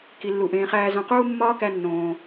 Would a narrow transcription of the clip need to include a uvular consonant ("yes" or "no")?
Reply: yes